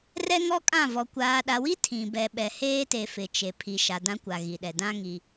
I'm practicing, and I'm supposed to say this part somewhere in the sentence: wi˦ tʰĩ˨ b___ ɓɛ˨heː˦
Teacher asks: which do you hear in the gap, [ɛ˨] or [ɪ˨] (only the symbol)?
ɛ˨